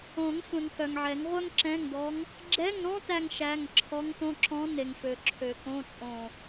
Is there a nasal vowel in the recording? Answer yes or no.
yes